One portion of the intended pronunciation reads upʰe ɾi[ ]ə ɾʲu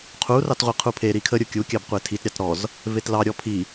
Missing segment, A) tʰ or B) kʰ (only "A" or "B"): B